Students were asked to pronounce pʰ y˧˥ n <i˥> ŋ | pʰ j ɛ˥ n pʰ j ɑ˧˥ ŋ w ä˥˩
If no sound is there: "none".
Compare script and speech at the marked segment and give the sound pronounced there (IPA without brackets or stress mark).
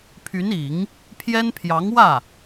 i˨˩˦